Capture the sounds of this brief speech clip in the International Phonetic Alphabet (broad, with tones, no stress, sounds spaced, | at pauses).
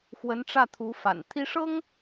x w ə˧˥ n ʈ͡ʂ ä˥˩ t̪ʰ u˧˥ f a̰˨˩ n t̪ʰ i˥ ʂ ɤ˥ ŋ